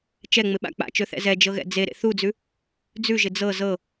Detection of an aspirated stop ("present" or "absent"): absent